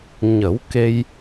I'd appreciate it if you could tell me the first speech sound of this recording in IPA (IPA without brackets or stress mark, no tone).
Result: ɲ